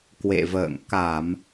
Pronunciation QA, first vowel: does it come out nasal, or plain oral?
oral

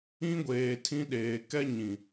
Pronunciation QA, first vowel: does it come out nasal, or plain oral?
nasal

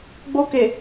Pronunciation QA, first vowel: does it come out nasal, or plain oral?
oral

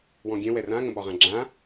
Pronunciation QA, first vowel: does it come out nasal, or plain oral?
nasal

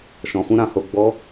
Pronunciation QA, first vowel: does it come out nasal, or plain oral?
nasal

